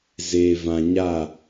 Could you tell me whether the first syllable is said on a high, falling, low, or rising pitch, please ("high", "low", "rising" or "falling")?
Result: low